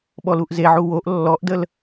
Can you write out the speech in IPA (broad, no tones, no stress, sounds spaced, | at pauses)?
ɓ ɔ l u ʔ z e ʕ u w o ʔ lː ɔ ʔ d ə l